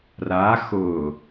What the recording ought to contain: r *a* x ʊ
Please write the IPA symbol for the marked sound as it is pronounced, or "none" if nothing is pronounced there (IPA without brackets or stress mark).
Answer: a